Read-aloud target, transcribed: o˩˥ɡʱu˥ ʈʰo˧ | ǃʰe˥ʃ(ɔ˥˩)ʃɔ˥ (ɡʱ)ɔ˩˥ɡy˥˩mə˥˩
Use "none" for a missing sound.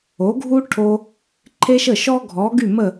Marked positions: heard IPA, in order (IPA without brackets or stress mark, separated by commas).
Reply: ə˥˩, ɡʱ